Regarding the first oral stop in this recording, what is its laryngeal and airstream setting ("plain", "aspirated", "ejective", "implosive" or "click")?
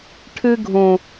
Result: aspirated